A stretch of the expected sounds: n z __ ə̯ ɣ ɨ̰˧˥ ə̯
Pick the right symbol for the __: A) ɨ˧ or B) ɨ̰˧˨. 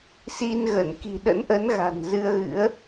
A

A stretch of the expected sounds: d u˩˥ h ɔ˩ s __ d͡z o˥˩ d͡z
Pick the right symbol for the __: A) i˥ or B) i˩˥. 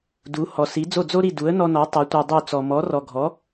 B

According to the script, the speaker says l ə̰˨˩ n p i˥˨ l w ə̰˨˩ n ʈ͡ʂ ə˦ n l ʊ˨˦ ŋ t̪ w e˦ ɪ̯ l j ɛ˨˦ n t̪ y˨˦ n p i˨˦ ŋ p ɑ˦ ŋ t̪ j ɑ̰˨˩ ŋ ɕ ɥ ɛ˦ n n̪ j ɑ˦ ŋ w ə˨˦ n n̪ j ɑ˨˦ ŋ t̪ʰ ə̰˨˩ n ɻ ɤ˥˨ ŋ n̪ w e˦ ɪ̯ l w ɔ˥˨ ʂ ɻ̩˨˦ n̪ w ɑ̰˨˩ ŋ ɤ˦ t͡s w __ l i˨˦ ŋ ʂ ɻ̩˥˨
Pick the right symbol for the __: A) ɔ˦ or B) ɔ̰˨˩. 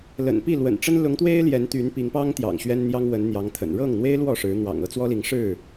A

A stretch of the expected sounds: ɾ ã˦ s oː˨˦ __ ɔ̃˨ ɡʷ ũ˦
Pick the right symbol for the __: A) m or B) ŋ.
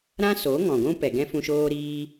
B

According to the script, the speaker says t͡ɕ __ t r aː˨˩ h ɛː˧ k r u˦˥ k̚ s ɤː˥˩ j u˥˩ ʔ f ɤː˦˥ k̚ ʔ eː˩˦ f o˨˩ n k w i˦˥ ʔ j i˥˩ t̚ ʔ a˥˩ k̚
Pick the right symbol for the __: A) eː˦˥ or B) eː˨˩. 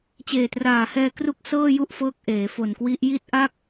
B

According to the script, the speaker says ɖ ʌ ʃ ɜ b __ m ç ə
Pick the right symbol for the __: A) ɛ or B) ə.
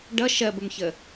B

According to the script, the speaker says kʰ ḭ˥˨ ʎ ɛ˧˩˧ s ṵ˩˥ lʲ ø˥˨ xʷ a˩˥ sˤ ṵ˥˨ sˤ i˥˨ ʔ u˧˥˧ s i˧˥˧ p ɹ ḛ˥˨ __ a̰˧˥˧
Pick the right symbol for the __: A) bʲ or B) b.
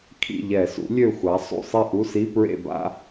B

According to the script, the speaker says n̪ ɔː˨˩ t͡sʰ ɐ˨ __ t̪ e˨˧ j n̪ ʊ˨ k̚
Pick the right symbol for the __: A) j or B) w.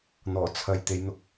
A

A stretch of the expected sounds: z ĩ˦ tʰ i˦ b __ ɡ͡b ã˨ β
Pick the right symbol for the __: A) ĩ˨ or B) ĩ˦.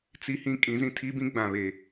B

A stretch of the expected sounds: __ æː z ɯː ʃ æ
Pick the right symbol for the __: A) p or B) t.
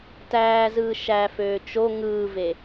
B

